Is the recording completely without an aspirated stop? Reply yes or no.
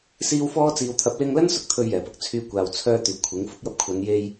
no